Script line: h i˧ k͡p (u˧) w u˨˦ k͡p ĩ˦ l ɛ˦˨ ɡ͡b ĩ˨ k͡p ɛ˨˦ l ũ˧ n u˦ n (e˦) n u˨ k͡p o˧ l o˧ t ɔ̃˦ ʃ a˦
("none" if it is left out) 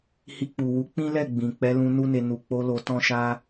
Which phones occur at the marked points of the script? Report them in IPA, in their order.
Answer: u˨, e˧

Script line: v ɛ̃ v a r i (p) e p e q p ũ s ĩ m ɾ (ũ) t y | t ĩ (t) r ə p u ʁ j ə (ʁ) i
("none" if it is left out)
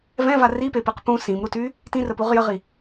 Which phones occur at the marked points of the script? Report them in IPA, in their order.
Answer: p, u, none, ʁ

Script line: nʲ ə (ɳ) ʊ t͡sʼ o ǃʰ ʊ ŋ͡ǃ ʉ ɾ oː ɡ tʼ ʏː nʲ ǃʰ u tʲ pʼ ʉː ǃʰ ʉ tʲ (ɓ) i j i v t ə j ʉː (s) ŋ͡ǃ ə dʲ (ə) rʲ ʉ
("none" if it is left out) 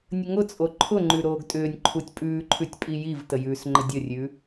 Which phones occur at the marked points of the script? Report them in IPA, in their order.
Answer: ŋ, pʼ, s, ə

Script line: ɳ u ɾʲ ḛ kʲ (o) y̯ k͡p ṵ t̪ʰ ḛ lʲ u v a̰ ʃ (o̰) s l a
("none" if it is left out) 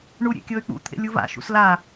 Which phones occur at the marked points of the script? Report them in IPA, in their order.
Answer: ɤ, ṵ

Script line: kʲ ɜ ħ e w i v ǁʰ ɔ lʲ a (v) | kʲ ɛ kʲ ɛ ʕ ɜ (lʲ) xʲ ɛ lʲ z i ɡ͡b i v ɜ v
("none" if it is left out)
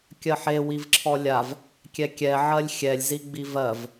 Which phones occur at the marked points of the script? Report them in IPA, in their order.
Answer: v, lʲ

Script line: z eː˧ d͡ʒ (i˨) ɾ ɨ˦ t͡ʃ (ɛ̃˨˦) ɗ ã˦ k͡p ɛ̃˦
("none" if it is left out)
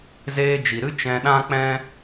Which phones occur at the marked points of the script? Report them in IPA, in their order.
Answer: i˨, ɛ̃˧

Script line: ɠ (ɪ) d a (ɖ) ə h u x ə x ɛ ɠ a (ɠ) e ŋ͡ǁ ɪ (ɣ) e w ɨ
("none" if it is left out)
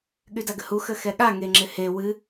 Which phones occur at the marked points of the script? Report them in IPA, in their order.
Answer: y, ɡ, ŋ, h

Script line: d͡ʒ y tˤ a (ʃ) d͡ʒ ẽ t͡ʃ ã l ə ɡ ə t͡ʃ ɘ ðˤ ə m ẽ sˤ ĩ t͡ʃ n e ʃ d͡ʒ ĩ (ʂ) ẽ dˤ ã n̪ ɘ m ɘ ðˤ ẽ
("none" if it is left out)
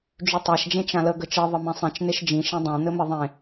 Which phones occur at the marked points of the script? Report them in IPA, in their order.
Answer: ʃ, ʃ

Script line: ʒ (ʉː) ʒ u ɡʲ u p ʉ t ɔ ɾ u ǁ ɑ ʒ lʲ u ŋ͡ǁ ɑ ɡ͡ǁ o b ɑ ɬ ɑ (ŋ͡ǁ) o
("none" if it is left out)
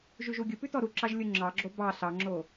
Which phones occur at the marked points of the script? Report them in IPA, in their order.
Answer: ʉ, ŋ͡ǁ

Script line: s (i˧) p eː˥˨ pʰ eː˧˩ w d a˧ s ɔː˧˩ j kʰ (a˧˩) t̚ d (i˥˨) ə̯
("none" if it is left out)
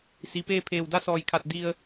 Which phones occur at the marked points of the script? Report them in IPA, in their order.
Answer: i˩, a˧˩, i˧

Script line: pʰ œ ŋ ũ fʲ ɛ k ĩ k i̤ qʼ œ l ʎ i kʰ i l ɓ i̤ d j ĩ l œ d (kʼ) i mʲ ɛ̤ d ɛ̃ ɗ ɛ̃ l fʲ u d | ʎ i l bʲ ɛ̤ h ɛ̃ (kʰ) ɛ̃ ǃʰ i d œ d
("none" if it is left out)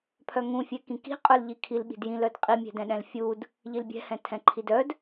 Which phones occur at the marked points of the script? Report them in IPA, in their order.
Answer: qʼ, tʰ

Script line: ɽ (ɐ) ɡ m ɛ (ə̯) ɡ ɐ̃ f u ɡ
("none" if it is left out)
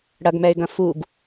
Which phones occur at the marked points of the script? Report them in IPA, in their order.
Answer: ɐ, ɪ̯

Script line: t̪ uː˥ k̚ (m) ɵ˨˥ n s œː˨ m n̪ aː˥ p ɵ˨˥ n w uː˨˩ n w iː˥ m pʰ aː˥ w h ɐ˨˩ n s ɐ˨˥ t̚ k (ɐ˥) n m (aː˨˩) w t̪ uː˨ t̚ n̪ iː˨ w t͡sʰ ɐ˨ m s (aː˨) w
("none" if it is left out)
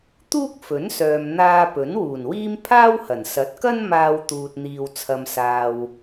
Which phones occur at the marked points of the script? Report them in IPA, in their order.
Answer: f, ɐ˥, aː˧, aː˨

